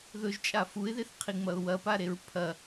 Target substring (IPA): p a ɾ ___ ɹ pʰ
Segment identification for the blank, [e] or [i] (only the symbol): e